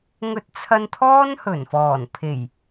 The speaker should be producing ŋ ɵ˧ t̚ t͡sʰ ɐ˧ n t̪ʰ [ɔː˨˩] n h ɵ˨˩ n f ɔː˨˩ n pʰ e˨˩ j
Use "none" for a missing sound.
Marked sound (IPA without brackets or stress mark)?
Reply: ɔː˥